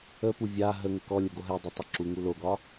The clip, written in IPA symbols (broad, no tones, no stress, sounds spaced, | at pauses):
ə p u vʲ a ɦ ə ŋ ə k ɔ lʲ ə ɡ o ɦ ɛ dˤ ɛ tˤ ə ǁ u ŋ u l o ɡ ɒ